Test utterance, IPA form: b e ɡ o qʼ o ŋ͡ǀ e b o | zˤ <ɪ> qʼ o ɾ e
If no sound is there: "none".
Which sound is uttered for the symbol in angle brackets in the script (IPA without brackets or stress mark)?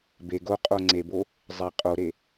ɪ